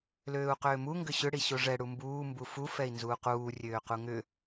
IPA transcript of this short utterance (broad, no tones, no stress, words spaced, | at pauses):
løːu̯qʏːmu ŋɡʏɕʏ ɽiɕoʐɛ ɽumbuː mbufu fɛi̯nzuːquː rʲøːquŋʏ